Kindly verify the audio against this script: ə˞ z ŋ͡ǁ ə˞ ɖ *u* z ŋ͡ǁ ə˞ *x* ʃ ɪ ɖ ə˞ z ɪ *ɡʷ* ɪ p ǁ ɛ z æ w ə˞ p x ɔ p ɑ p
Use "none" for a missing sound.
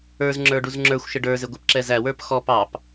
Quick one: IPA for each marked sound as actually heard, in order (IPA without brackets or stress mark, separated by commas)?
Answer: u, xʷ, ɡʷ